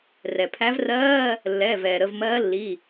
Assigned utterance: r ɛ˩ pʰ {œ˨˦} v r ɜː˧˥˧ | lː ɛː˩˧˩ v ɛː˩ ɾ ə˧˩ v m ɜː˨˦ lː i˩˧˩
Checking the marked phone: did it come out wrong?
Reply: yes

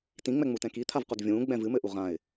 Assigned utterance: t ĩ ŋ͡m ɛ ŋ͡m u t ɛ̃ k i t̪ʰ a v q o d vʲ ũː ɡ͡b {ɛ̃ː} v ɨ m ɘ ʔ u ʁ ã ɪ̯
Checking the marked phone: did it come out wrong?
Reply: yes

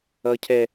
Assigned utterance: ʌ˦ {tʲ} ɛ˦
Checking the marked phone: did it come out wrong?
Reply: yes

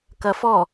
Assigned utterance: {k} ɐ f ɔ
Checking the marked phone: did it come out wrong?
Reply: no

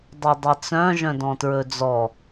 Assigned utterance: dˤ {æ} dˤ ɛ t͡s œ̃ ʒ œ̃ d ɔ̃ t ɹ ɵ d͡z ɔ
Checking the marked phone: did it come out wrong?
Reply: yes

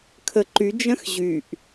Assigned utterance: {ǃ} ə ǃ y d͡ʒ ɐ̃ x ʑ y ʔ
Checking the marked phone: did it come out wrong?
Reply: yes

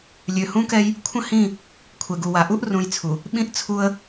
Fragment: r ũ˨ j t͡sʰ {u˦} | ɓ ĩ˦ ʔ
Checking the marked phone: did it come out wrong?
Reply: yes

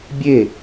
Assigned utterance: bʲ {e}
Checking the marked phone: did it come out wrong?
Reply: no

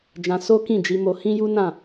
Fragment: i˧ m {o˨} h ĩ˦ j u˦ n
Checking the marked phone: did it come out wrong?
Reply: yes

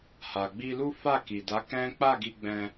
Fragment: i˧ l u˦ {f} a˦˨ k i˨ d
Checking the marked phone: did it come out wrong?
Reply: no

